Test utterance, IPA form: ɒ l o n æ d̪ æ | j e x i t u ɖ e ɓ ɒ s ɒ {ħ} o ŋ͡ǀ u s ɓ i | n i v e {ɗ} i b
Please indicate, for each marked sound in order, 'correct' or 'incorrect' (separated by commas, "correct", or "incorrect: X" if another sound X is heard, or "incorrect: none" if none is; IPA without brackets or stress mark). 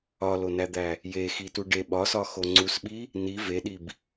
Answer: incorrect: x, correct